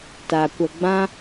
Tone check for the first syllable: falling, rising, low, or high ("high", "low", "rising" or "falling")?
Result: low